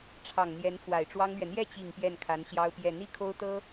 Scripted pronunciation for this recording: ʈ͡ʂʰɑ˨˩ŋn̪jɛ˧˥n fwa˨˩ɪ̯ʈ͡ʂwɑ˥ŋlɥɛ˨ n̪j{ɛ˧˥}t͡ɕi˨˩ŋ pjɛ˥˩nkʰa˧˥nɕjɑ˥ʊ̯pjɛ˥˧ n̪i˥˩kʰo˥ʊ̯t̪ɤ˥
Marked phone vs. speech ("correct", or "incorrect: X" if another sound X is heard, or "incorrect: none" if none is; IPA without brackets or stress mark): incorrect: ɛ˥˩